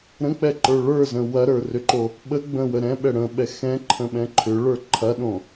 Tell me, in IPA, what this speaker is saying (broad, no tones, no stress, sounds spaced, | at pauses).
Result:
ɾ ə̃ k͡p ɛ ǃ ə˞ ɭ ə˞ z ə̃ w ɐ ɾ ə˞ r ʏ ǃ o | ɓ ə ɡ͡b ə̃ w ə ɾ ɛ̃ ɓ ɛ ɽ ə̃ ɓ ɛ x ɛ̃ ǃʰ ə̃ ɓ ɛ̃ ǃʰ ʏ ɭ ə˞ ǃʰ ɐ ɗ õ